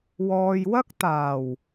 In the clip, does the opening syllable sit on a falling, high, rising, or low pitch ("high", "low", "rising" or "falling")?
low